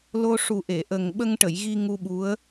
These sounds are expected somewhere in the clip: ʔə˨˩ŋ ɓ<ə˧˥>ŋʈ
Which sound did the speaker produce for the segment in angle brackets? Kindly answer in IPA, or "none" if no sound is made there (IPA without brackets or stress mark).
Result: ə˧